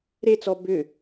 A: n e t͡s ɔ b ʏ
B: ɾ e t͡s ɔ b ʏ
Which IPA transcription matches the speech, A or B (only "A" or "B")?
B